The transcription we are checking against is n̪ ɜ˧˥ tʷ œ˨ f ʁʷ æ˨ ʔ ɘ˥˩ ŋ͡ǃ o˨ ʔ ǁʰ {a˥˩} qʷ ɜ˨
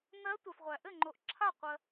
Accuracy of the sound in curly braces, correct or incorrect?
correct